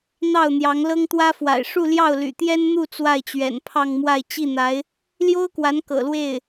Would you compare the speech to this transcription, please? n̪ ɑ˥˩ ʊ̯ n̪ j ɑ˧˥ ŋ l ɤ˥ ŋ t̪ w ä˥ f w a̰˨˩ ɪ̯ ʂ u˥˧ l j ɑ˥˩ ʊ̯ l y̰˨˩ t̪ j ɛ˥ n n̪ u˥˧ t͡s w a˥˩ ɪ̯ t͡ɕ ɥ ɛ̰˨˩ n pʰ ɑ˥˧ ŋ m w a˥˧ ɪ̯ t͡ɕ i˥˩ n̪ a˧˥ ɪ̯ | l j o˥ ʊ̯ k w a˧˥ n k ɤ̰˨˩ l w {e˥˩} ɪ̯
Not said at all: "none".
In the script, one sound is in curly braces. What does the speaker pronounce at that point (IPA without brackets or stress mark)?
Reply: e˥˩